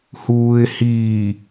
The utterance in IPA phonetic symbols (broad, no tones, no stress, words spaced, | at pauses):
huːɪ̯hiː